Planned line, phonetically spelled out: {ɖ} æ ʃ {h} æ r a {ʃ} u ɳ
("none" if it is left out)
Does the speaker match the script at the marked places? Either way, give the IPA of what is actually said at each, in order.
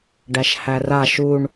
ɖ, h, ʃ

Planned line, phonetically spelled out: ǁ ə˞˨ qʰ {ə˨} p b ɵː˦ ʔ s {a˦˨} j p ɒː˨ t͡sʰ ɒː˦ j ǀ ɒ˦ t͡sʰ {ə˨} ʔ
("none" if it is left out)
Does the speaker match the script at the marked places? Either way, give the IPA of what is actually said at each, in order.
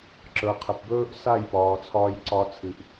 ə˨, a˦˨, ɨ˨

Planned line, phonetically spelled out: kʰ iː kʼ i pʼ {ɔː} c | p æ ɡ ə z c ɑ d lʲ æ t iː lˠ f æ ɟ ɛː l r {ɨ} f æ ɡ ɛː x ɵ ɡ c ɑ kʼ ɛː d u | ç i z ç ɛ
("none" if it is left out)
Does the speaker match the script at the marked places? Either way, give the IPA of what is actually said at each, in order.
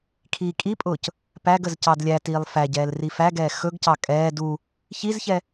ʊː, i

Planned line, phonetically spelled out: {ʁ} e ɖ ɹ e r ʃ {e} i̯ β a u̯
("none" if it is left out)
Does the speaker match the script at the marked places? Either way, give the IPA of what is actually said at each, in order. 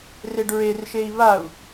r, e

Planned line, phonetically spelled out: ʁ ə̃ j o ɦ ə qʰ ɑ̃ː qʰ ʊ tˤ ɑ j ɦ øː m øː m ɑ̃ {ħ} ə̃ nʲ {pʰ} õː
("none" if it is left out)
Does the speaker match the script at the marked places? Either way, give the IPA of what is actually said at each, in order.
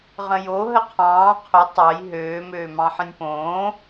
ħ, p

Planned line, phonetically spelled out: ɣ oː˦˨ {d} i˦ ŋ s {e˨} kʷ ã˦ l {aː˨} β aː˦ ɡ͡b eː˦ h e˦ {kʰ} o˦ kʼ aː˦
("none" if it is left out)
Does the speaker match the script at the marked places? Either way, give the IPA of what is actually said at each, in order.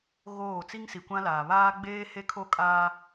t͡s, i˨, aː˨, kʰ

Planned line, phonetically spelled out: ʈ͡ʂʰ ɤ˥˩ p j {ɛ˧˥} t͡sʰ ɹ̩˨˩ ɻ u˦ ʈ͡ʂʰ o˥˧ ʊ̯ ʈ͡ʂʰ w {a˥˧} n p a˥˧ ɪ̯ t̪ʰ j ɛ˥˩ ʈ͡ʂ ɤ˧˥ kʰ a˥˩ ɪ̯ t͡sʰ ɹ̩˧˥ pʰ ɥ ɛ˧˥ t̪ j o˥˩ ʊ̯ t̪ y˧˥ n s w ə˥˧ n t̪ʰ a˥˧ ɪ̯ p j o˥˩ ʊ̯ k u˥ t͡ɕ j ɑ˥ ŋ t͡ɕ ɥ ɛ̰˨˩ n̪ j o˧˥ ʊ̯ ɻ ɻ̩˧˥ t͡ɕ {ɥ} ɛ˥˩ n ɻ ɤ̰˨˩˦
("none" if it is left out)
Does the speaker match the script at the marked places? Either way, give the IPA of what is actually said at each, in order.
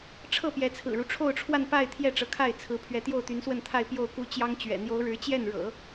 ɛ˧˥, a˥˧, j

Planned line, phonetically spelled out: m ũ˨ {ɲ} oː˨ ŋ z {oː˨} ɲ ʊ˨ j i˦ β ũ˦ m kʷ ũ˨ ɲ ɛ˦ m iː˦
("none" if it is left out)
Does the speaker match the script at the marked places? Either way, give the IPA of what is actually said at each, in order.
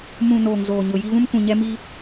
n, oː˨

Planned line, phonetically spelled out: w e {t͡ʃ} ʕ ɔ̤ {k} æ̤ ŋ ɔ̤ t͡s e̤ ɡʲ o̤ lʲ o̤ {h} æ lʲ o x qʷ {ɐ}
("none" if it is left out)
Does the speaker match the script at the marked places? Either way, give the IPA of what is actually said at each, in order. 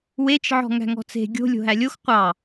t͡ʃ, ŋ, ɦ, ɑ

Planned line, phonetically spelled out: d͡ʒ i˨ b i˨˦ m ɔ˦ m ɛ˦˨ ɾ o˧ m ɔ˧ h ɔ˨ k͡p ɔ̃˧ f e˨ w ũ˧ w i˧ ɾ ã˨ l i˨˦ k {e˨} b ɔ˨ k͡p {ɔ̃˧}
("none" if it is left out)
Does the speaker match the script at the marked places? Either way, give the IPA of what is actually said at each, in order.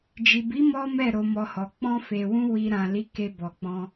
e˧, ɔ̃˧

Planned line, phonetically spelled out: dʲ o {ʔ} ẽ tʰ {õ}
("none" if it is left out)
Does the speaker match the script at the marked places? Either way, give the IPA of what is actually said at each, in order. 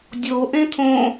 ʔ, õ

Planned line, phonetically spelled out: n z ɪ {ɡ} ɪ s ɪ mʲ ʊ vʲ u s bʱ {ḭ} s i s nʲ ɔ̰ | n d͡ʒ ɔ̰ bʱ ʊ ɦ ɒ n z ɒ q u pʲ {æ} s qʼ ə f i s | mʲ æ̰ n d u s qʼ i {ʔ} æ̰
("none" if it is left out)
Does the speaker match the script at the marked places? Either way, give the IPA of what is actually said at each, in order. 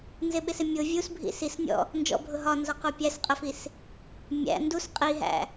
ɓ, ḭ, æ, ɦ

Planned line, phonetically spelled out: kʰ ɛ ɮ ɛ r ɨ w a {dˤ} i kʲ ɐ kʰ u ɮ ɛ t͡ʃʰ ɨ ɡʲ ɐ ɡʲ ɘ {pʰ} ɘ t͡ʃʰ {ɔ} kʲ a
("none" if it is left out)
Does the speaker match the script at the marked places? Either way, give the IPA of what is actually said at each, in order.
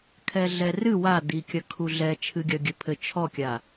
d̪, pʰ, ɔ

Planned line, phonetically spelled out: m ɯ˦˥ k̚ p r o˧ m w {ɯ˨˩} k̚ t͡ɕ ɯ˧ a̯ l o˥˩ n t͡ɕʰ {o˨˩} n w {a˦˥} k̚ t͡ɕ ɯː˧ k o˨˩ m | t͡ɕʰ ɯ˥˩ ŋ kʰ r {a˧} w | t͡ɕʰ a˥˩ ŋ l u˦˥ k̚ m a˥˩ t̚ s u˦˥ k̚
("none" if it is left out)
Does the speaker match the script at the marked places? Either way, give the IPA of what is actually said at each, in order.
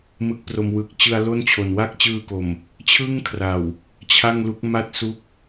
ɯ˨˩, o˨˩, a˦˥, a˨˩

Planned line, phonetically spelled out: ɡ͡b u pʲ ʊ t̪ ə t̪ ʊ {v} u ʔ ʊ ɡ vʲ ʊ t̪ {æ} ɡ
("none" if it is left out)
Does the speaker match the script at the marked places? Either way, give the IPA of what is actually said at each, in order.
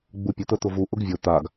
v, a

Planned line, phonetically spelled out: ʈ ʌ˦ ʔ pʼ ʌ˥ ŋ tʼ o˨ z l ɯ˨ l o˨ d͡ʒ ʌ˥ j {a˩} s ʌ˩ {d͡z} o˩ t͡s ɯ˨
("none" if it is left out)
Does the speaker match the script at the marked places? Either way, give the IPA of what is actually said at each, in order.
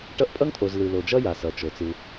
a˩, t͡ʃ

